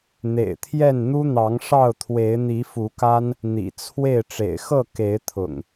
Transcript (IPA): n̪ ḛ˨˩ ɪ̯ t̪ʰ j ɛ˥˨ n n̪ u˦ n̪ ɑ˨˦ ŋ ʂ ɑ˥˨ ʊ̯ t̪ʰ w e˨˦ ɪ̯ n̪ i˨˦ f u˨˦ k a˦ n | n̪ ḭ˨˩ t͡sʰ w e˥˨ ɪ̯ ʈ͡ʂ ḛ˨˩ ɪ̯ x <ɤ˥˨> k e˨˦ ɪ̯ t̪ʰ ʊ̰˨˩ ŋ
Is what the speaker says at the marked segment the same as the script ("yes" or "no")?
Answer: yes